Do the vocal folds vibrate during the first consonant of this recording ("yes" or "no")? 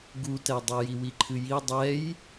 yes